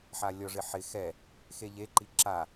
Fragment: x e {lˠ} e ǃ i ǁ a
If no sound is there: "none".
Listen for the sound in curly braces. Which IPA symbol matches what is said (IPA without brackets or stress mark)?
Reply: ʎ